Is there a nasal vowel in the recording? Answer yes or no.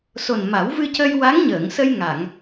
no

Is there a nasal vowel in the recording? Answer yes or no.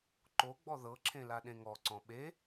yes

